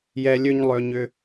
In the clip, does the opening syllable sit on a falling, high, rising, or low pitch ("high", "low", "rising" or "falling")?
low